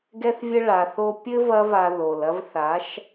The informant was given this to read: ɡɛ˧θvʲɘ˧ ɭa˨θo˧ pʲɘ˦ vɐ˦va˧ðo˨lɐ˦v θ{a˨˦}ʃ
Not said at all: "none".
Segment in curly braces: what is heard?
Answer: a˨˦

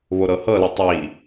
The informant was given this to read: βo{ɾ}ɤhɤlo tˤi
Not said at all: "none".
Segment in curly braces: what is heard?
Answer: ɾ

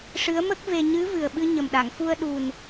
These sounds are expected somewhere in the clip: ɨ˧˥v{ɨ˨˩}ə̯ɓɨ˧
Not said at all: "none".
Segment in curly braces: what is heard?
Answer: ɨ˨˩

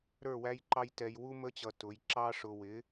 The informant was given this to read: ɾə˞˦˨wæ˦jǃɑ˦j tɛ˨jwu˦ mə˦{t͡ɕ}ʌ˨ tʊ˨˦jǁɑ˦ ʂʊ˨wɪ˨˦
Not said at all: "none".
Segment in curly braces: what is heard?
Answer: t͡ɕ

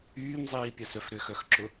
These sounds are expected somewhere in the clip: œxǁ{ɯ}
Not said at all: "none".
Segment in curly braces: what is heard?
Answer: ʊ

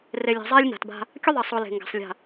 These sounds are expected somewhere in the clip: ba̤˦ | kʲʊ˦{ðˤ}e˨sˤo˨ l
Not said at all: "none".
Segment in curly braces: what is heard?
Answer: ðˤ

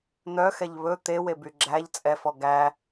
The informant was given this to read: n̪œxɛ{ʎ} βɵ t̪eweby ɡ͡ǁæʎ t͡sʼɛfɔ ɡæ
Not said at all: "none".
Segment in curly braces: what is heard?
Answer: ʎ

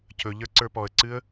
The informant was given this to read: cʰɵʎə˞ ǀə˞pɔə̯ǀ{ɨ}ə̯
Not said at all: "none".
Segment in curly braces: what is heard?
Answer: ɨ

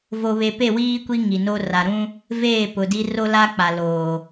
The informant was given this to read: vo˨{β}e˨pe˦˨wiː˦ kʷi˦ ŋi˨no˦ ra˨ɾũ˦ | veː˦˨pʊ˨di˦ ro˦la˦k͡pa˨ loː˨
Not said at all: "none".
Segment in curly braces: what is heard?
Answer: β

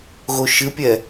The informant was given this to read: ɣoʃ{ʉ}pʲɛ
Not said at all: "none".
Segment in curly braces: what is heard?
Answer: ɨ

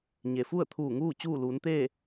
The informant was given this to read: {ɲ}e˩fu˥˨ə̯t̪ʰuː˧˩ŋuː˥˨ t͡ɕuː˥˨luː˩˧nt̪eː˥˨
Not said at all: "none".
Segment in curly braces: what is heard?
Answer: ɲ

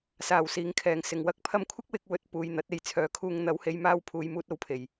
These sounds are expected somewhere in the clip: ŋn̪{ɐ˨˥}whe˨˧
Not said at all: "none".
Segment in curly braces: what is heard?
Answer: ɐ˨˥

